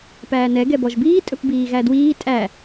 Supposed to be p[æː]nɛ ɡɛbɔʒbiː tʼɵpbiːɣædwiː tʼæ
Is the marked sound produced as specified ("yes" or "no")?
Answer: yes